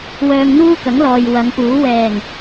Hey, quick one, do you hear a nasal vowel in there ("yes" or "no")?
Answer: no